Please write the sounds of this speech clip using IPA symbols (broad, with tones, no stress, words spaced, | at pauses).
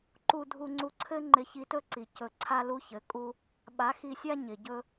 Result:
ǃu˧dʱu˧ŋ͡ǀu˧ǀʰɘ˦ ŋ͡ǃɪ˧çi˧tɵ˦ǀi˨ cɵ˧ ǀʰa˦lu˦çɘ˨˦kʼu˦ | ɓa˨˦xi˧sʲa˦ ɲɪ˨ɟɵ˦